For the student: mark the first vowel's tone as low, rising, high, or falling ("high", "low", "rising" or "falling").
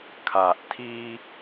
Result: low